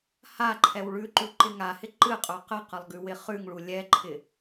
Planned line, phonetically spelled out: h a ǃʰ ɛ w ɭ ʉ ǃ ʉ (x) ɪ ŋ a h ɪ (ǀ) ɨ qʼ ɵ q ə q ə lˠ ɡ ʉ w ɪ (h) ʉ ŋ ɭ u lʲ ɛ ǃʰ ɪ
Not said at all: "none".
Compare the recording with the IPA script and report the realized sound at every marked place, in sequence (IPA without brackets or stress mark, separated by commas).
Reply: ǃ, ǃ, χ